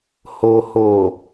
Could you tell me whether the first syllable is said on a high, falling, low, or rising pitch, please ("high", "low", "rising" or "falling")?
low